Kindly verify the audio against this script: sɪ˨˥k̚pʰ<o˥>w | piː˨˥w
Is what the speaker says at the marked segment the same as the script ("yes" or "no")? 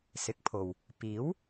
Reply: no